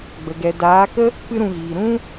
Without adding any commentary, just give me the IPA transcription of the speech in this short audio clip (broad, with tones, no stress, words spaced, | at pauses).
ɡ͡bə˨ɡɛ˨ daː˨˦kə˦ | pɨ˦ɾũ˧ɣiː˨ ɾũ˦